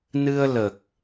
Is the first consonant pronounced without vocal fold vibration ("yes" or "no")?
no